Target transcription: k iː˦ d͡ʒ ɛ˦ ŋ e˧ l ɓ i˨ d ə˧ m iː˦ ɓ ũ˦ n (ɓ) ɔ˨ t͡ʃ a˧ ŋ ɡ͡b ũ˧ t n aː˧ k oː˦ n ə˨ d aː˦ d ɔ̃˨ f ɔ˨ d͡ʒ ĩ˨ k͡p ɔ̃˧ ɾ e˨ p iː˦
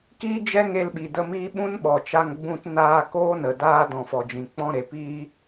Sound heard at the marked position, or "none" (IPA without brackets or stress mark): ɓ